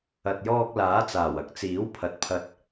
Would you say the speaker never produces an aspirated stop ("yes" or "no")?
no